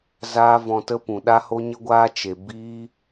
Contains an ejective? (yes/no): no